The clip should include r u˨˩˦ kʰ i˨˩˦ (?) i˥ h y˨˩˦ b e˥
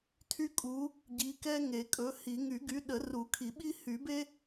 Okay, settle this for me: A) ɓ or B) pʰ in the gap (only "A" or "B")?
A